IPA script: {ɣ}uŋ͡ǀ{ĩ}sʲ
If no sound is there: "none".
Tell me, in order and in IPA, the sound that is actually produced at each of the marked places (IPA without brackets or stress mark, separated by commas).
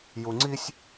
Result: j, i